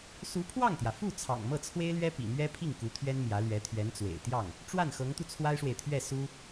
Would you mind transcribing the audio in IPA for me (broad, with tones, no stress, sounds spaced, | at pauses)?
s u˧˥ pʰ w ɑ˥˩ ŋ t̪ j ä˩ f u˥˩ t͡sʰ ɑ̰˨˩ ŋ m ɤ˥˩ t͡sʰ w e˥ ɪ̯ l ɥ ɛ˥ p ḭ˨˩ m ɥ ɛ˥ pʰ i˥˩ ŋ k u˧˥ t̪ʰ ɥ ɛ˥ n m j ä˧˥ l ɥ ɛ˧˥ t̪ʰ ɥ ɛ˧˥ n t͡s w ḛ˨˩ ɪ̯ t̪ j ɑ˥˩ ŋ | ʈ͡ʂ w a˥˩ n x ɤ˧˥ ŋ t̪ u˧ t͡sʰ w a˥ ɪ̯ ʂ w e˨ ɪ̯ t̪ʰ ɥ ɛ˥˩ s u˥